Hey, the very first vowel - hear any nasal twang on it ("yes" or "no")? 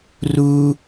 no